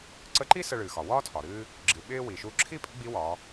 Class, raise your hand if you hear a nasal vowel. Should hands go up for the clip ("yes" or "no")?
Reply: no